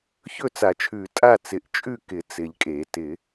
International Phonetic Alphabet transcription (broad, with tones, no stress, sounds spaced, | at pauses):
ç ɵ˥˨ t͡s a˨˩˦ t͡ʃʰ ʉ˨˩˦ tʼ a˥˨ t͡s ɪ˨˩˦ ʔ t͡ʃʼ ʉ˥˨ k ɪ˨˩˦ t͡s ɪ˨˩˦ ʎ kʼ e˨˩˦ t ɪ˨˩˦